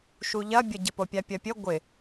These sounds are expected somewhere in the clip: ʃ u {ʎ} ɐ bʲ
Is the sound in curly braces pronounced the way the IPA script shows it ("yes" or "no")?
yes